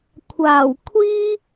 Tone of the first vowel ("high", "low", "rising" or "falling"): low